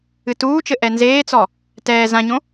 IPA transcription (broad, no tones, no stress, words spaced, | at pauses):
ɨtuːt͡ʃɘ ʔɛnzeːt͡sɔ | tɛː zãɲõ